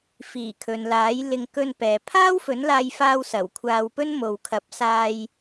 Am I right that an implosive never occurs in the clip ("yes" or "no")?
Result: yes